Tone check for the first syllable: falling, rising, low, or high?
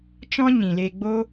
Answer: high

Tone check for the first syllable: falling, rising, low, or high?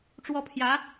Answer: falling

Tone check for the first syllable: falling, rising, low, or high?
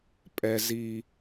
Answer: low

